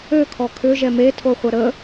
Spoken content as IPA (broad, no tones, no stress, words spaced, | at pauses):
økʰɔ kʰʏʒɛ metʰoχʷɐ ɾə